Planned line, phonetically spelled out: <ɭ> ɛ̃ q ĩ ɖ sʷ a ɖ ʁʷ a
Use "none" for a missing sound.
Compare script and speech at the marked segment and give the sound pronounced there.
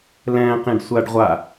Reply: l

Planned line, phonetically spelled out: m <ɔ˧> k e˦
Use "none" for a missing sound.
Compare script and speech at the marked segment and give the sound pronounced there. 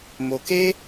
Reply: o˧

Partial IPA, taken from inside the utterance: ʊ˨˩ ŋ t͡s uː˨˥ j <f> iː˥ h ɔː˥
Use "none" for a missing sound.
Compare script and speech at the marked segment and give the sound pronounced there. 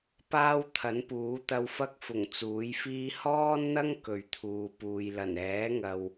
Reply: f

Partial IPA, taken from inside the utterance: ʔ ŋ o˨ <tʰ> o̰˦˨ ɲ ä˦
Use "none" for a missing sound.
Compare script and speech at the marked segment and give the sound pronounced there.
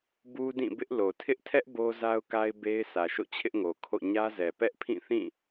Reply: kʰ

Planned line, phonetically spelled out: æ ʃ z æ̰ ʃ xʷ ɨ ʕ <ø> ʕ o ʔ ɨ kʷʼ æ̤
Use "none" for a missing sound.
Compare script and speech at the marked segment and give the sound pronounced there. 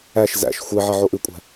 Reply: ə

